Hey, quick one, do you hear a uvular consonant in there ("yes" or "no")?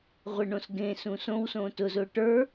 yes